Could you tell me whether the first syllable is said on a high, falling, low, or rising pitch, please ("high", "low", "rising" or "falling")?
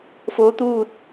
rising